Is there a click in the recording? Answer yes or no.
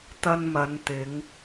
no